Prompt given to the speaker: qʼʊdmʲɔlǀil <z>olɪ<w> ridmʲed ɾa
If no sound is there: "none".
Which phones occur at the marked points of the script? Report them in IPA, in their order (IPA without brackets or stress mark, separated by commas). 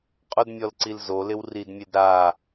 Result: z, w